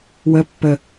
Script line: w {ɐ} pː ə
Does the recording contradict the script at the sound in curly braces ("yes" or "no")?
yes